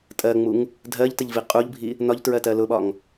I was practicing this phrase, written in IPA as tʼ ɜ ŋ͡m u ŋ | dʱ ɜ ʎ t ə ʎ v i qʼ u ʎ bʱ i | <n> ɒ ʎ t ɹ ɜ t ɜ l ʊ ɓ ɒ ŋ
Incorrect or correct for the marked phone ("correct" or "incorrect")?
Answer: correct